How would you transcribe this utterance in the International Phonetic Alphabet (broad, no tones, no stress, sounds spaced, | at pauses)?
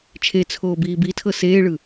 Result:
t͡ʃʰ e t͡sʰ oː b iː b i tʰ ɤ s eː ɭ ɯ